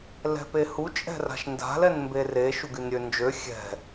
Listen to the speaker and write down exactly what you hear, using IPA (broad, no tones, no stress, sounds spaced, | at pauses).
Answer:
l ɛ̤ p e h u t͡ʃʼ ɛ̤ r a̤ ʃ n d a̤ l ɛ n m b e r e ʃ u ɡ y n ɾʲ ø n d͡ʒ ø xʲ ɛ̤